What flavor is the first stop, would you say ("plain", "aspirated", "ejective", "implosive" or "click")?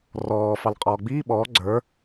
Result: ejective